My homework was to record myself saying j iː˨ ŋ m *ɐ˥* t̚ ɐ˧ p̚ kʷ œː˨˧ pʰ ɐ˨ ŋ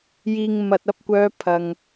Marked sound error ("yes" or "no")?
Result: yes